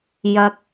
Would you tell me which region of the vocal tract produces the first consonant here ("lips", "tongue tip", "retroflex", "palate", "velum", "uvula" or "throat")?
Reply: palate